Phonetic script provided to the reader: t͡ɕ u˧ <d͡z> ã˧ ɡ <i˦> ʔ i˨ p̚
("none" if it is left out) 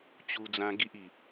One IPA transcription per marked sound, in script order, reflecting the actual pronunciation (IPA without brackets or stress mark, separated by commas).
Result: d͡z, i˦